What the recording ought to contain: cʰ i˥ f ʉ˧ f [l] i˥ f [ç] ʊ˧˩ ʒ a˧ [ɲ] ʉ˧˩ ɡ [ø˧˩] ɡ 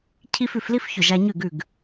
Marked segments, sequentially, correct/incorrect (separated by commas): correct, correct, correct, incorrect